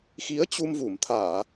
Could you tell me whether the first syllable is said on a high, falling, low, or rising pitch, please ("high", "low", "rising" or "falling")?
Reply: rising